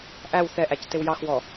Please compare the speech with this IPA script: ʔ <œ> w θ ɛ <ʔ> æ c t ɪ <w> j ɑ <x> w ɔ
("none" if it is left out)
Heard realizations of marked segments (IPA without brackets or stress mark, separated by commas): æ, ʔ, w, x